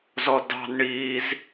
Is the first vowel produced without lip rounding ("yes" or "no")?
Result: no